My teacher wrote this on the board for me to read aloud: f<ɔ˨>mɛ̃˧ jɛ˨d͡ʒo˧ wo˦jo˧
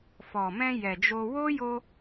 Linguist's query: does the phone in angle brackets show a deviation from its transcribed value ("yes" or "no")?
no